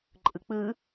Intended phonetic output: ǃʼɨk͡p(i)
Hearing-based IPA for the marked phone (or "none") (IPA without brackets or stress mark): ɨ